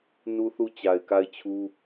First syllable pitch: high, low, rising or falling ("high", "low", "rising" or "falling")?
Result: high